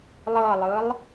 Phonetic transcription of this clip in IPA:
lˠ ɤ lˠ ɯ lˠ

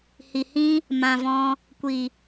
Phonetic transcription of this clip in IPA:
h i˨ h ĩ˧ | m ã˨ v ɔ̃˧ | kʷ i˨

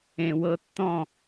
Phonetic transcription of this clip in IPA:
ẽ˨ w ɤ˧ tː ɔ̃˦˨

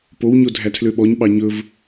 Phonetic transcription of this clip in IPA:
p o w ɲ o dʱ æ tʰ l ø ɓ ɔ ɲ ɓ ɑ ɲ ɵ v

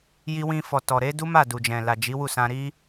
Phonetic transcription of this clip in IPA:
j i˧ w ĩ˧ f ɔ˨ t ɔ˨ ɾ e˨˦ d u˦ m a˦˨ d u˨ d͡ʒ ɛ̃˨ l a˨ d͡ʒ i˨˦ w u˦˨ s ã˧ ɾ i˦

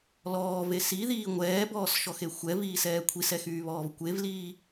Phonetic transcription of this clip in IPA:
l ɔː v e s i ð iː ŋʷ ɛː b ɔː s ʃ ɔ x e xʷ ɛ v iː s ɛː kʷʰ i s ɛ x yː β ɔː v kʷ e v l iː

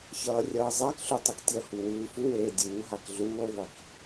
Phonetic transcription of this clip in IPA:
ç ʌː rʲ ʌː zˤ a k ɬ u tˤ i k tʲ ʌ h u w ɯː f u w eː dʲ uː ɦ a k ɮ uː ðˤ i k

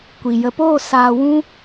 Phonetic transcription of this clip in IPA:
kʷ i˨ j ə˨ p oː˦˨ s aː˨ w ũ˧

